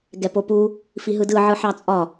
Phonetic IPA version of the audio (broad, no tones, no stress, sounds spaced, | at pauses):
ɡ ɛ p o p u | f i ɦ ɯ d ɯ ʕ ɯ ħ ɑ t͡sʼ ɒ